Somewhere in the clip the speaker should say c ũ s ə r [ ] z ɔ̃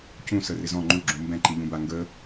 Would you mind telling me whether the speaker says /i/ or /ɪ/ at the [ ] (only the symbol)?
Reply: ɪ